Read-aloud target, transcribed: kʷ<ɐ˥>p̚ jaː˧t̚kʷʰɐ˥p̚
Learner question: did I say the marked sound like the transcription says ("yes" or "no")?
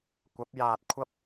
no